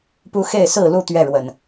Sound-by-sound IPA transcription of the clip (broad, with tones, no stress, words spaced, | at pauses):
pu˦xe˥˨ɪ̯sɹ̩˥˨lu˥˨ t̪ɥɛ˥˨ɻwə˨˩n